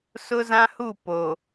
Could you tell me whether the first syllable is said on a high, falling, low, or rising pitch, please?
high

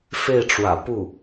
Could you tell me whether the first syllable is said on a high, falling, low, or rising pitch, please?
falling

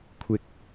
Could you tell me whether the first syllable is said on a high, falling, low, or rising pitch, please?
high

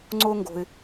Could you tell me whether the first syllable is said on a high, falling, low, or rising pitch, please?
high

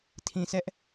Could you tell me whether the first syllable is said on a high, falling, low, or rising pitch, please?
low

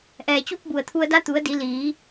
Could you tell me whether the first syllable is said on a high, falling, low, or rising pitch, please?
low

